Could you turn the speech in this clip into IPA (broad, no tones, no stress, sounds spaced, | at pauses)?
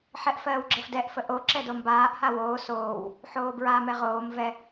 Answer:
ħ ɛ ʔ f ɜː w ɡ͡ǁ ə f d ɛ ʔ f ə ʔ o ǁ ɛ d o m b aː ʔ h a w oː s oː w | ħ oː b ɹ a m ɛ ʁ oː m v ɛ